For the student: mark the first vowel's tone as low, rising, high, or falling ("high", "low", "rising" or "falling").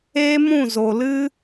high